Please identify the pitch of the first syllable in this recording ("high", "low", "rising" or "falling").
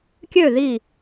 falling